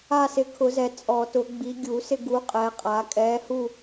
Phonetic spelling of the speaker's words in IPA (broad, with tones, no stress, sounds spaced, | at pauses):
a˦˨ s ɪ˨˦ kʰ ʊ˨˩˦ z ɛ˨˩˦ t͡sʼ ɔ˨˩˦ t ʊ˨˩˦ ɡ͡b i˨˦ ɡʲ u˨˩˦ s ɪ˦˨ ɡ u˨˦ qʼ ɛː˨˦ qʼ aː˨˦ kʼ ɛː˨˦ h u˦˨